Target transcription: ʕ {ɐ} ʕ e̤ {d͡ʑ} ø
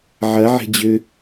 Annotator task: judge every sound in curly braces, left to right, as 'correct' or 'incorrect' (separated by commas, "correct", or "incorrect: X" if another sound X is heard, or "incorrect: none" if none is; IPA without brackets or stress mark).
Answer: correct, correct